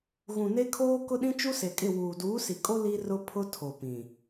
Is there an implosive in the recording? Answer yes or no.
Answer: yes